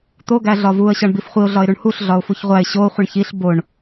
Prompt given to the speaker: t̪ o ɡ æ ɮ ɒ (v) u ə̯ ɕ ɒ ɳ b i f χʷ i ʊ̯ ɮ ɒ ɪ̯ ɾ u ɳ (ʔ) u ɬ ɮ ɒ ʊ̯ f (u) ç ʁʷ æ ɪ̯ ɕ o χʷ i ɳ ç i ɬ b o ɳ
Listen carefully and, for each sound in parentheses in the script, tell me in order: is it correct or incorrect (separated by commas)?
correct, incorrect, correct